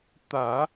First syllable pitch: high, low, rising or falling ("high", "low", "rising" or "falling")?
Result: low